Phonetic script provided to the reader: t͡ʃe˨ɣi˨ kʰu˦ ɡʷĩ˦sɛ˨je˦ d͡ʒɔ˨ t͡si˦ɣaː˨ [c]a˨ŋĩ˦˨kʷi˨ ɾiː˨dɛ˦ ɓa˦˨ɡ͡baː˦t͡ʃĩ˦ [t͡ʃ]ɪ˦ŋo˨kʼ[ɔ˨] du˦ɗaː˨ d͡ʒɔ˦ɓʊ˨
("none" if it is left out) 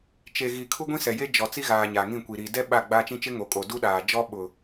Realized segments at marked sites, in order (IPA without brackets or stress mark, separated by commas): ɲ, t͡ʃ, o˨